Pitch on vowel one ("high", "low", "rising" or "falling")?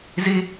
high